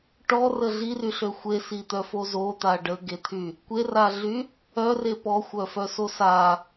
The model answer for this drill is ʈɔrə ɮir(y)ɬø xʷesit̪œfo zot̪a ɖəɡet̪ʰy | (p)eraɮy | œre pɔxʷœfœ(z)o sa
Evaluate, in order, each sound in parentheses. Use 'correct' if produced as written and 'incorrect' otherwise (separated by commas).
correct, incorrect, incorrect